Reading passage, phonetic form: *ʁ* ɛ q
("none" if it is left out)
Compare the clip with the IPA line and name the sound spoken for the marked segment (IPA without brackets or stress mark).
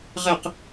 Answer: ʁ